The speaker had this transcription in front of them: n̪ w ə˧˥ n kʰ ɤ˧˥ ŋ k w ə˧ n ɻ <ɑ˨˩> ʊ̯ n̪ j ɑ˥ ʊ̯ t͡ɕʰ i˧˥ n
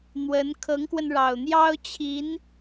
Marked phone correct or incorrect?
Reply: correct